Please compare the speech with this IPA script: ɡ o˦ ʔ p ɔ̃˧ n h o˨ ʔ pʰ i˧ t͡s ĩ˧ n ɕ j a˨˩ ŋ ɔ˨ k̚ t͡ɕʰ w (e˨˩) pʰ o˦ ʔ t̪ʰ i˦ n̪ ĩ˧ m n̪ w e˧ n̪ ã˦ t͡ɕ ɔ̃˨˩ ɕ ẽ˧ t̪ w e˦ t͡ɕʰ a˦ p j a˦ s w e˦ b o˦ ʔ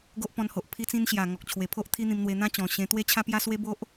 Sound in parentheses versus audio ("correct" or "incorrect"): correct